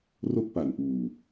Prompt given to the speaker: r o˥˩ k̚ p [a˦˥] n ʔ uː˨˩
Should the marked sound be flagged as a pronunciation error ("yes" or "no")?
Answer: yes